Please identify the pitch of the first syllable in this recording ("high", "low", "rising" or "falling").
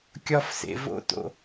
high